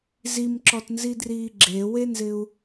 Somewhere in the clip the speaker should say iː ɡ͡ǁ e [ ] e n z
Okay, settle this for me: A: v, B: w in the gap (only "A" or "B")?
B